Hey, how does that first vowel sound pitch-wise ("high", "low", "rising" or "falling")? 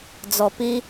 low